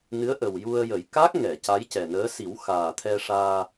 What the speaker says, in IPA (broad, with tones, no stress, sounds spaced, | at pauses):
n ɨ˧˥ ə̯ ʔ ə˨˩ w j u˧ ə̯ j ə˨˩˦ j k a˦˥ k̚ ŋ ɛ˨˩˨ c a˧˥ j c ɛ˨˩ n əː˧˥ s i˨˩˦ w x aː˨˩ t̪ʰ ɛ˧ ʂ aː˧